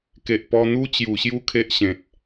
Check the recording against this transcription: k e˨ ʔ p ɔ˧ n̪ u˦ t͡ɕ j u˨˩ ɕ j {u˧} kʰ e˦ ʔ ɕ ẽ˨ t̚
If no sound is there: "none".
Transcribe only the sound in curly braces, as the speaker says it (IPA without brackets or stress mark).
u˦